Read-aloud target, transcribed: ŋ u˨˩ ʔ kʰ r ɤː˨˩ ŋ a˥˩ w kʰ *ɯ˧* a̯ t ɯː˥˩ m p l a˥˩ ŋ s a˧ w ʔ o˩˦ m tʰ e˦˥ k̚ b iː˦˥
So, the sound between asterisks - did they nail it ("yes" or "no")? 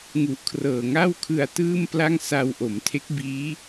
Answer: yes